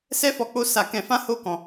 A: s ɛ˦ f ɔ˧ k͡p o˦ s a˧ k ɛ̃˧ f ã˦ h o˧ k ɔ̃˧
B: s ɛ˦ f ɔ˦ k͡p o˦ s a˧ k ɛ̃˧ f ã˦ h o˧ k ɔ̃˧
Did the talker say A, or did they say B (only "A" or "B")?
A